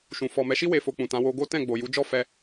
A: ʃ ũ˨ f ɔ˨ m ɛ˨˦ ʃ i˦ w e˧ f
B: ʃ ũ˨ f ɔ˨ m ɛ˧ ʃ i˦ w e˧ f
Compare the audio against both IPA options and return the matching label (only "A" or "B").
A